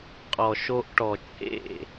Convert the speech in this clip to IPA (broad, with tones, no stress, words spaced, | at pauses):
qʼɔ˨ʃo˧ʔ ʈɔ˨t͡ʃʼḛ˦˨